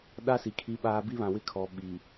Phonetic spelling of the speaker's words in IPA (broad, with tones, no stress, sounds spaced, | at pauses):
ɗ a˦ s i˨ kʰ i˦ ɓ aː˦ b i˦ β ã˨ w ɪ˦ kʰ ɔ˨˦ ɓ i˨